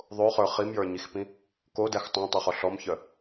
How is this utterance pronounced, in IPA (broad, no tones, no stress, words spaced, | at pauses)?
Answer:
ðˤoχə˞ χimjə˞ɲixpĩ | kodæx tˤæ̃tˤøχɔ ɬɔmçœ